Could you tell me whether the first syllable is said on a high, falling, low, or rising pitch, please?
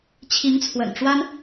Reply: rising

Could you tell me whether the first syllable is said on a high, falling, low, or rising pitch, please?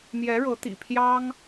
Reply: rising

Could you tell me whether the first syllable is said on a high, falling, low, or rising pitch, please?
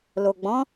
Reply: low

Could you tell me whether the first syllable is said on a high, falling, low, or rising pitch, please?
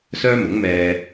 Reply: high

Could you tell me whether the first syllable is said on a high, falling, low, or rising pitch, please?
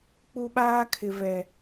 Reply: high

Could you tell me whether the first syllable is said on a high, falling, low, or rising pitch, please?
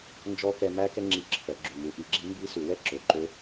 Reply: rising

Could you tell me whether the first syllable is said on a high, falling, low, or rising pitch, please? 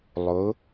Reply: rising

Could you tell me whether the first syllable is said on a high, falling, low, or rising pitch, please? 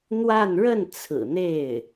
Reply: falling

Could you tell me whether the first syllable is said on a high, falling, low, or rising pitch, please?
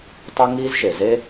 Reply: high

